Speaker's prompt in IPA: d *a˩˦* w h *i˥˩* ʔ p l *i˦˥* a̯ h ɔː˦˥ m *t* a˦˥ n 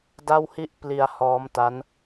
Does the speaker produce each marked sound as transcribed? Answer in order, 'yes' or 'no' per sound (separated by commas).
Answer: no, yes, no, yes